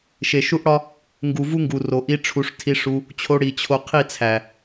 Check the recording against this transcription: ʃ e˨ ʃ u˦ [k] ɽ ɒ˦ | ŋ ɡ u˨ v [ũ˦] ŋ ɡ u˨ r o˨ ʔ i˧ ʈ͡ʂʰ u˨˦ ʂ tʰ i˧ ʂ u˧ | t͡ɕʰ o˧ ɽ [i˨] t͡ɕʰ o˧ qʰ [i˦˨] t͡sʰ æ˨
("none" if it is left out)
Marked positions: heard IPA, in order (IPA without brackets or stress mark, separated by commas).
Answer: ʔ, u˦, i˨, i˦˨